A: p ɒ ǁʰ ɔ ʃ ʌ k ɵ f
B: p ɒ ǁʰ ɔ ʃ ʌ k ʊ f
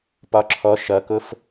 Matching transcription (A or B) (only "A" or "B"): B